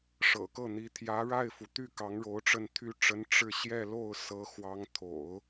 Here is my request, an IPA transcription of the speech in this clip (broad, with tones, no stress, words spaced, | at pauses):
ʂɤ̰˨˩kɤ˥˩n̪i˧˥ t̪ʰjä˧˥ɻa˥˩ɪ̯fu˩t̪y˥˩ kɑ˧˥ŋɻo˧˥ʊ̯ ʈ͡ʂə˥˩nt̪ʰy˥ ʈ͡ʂə˧˥n ʈ͡ʂɻ̩˥˧ ɕjɛ˥˧lo˥˩ʊ̯ sɤ˧˥xwɑ˧˥ŋt̪ʰo̰˨˩˦ʊ̯